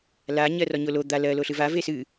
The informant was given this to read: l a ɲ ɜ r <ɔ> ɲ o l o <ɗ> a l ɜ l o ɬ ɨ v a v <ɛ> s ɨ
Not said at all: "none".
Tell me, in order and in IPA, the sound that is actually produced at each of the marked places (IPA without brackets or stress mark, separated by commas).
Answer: ɔ, d̪, e